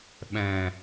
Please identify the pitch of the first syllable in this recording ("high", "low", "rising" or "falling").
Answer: low